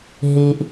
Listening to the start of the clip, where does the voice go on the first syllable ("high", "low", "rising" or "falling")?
high